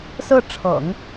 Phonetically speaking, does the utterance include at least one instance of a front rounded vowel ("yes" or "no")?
no